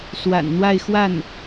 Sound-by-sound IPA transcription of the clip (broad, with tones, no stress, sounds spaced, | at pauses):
s w a̰˨˩ n n̪ w a˥˧ ɪ̯ x w a˥˩ n